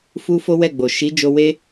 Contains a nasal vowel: no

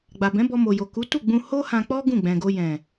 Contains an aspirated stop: no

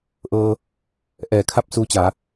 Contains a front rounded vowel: no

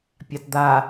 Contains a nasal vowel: no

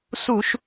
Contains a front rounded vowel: no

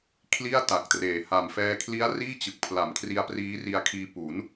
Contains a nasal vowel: no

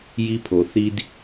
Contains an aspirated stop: yes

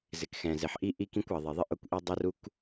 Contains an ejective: no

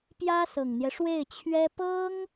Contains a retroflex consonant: yes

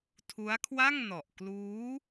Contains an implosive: no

